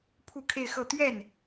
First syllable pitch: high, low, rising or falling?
falling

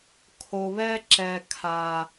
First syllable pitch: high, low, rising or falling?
low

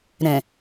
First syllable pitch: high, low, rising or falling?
low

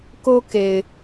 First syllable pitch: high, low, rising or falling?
high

